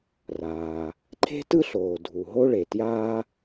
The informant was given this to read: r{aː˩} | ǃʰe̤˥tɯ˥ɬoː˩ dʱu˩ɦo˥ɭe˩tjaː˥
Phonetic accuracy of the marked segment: correct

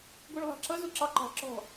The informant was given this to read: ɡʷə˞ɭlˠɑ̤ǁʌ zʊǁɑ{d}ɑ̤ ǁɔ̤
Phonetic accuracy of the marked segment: incorrect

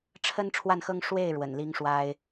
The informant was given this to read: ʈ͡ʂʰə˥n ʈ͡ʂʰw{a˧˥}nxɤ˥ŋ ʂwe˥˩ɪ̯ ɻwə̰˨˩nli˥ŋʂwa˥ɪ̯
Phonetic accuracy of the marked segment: incorrect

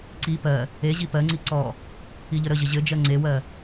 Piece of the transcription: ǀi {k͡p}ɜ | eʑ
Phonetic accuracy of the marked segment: incorrect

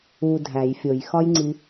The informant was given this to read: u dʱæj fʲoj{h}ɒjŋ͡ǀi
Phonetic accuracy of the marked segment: incorrect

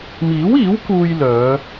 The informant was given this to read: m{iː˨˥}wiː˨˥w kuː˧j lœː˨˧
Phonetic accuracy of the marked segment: correct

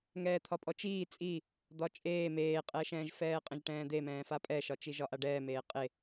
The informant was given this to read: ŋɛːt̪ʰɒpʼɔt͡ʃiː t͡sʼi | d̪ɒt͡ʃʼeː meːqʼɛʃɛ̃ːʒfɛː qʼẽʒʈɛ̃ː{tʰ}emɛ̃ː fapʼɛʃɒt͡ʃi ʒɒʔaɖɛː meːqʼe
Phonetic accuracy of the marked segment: incorrect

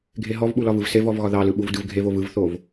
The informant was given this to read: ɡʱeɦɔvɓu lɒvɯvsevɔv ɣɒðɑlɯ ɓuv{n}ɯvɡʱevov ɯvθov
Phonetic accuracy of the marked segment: incorrect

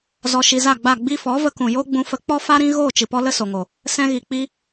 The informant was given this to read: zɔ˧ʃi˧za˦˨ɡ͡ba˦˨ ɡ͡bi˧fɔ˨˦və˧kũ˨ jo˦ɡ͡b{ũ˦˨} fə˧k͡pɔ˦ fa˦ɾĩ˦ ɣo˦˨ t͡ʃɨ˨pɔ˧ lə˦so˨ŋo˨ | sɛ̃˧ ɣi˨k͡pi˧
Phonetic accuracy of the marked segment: incorrect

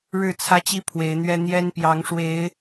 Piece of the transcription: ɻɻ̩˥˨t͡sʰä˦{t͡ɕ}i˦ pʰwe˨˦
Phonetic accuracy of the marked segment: correct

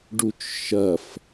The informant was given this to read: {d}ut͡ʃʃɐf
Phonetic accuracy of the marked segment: incorrect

